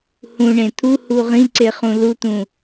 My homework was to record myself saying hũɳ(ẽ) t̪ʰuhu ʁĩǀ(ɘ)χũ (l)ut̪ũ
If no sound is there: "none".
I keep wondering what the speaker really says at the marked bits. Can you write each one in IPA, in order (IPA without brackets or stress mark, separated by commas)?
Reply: ẽ, e, l